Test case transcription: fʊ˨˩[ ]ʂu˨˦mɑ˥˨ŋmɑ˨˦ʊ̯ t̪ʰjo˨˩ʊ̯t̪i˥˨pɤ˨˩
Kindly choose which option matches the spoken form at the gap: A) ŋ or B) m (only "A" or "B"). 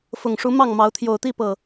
A